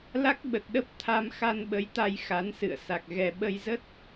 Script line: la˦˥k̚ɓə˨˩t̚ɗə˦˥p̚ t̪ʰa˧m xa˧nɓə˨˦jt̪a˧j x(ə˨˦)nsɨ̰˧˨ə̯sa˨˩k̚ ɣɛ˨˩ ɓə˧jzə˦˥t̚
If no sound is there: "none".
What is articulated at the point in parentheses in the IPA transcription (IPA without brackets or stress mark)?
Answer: a˨˦